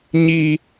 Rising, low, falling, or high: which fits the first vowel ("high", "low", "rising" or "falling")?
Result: high